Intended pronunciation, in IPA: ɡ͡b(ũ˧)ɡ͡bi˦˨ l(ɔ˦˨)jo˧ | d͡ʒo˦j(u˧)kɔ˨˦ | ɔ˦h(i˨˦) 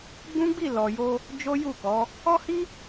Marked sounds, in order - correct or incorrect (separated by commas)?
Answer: incorrect, incorrect, incorrect, incorrect